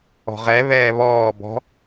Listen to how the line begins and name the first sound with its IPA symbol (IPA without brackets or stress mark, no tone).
ɔ̤